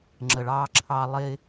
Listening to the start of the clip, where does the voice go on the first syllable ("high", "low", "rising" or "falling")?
low